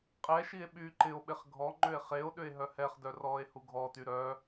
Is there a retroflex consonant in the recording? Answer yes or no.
no